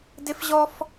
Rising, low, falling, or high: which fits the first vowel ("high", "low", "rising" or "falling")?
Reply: high